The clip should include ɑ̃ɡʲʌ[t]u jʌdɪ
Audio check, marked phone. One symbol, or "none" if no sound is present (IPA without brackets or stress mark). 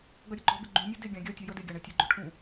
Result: tʲ